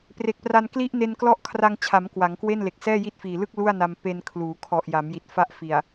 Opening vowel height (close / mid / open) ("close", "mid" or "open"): mid